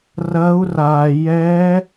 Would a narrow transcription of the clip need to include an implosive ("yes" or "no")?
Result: no